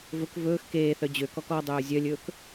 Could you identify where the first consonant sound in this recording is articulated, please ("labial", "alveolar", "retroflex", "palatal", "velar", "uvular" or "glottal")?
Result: labial